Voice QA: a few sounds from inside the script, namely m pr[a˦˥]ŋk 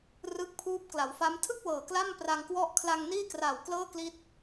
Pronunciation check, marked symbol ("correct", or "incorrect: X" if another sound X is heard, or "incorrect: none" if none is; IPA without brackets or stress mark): incorrect: a˧